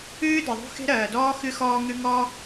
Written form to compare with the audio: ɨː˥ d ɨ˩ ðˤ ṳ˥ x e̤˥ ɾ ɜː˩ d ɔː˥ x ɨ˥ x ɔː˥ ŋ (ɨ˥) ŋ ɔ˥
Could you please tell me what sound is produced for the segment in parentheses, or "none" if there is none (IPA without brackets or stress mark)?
ɨ˥